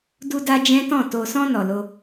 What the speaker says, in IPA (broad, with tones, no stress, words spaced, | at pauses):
du˧da˧ d͡ʒɛ̃˦tɔ̃˦˨ to˨sɔ̃˧ nɔ˨lo˧